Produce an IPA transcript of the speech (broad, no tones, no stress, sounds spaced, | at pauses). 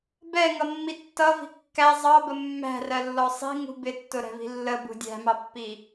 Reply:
b ɛ ŋ ʌ mː i tː ʌ v i̤ kː æ zˤ ɑ b ə mː æ̤ r ɜ lː ɔ sˤ i̤ ŋ ṳ b ɪ tː ʊ ɾ ɛ̤ v i̤ lː ə b ṳ dʲ æ̤ m ɑ pː i